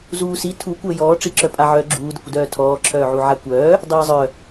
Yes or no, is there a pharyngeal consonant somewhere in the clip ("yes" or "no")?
yes